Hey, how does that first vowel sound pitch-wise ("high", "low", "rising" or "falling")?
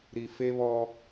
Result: low